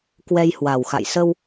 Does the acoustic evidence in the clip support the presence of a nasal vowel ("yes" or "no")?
no